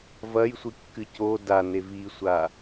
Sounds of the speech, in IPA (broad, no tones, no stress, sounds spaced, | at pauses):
v ɐ j sʷ ɨ kː ɨ c o d a n e v i sʷ a